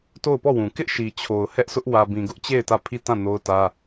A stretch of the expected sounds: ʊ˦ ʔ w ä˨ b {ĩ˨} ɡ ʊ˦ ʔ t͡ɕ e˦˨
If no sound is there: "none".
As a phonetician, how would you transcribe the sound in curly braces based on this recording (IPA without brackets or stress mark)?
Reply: ĩ˨